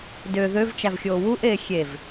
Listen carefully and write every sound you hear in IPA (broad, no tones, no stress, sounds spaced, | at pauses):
d ø ð ø v t͡ʃ æ v xʲ oː w u ʔ eː xʲ e v